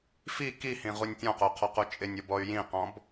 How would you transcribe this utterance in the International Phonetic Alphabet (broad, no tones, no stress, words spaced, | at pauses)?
fi kihĩʁunʲ tʲɔ̃qoqʰɔqu t͡ʃʼɪnʲobɔy̯ jĩqɔ̃b